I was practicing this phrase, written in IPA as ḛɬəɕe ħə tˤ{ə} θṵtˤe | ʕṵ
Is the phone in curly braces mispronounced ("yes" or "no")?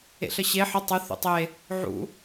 no